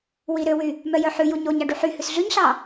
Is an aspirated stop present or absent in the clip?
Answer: absent